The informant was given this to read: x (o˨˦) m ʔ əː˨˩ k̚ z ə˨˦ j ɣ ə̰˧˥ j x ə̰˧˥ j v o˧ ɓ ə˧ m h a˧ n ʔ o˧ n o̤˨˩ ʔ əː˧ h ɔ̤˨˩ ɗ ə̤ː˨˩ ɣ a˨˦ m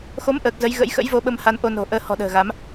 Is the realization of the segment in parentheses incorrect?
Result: no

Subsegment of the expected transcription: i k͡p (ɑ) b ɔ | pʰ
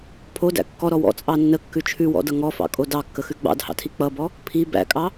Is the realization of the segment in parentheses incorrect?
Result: yes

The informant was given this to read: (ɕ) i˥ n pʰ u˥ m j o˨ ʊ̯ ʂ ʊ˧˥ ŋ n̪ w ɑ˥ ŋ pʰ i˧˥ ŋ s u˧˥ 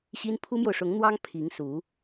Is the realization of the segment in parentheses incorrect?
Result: no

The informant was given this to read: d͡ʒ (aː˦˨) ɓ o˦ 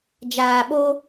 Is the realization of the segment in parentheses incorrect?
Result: yes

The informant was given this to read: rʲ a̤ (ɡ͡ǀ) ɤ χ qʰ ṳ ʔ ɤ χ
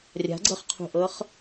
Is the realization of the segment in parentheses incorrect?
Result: no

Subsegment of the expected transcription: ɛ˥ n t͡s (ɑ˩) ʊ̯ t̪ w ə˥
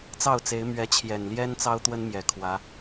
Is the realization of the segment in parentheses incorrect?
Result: yes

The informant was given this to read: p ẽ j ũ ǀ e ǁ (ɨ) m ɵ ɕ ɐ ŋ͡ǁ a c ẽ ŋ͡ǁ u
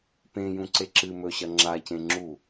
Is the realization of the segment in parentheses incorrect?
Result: no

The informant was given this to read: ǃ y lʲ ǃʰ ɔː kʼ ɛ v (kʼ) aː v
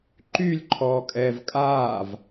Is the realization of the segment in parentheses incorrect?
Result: no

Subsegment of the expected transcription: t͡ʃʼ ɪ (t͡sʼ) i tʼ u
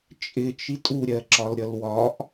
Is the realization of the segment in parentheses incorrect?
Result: yes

